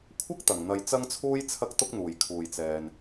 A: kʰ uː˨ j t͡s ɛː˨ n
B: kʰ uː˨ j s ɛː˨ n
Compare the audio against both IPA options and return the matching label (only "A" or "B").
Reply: A